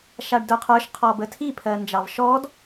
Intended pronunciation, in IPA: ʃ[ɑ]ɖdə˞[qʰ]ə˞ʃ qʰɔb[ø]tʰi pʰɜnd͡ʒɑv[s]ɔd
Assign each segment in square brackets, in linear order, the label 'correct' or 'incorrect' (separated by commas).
incorrect, correct, incorrect, incorrect